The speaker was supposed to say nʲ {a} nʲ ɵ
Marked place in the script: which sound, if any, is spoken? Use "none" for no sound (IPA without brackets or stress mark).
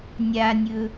a